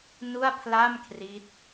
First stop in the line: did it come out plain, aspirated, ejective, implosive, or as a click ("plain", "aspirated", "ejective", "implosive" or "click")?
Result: aspirated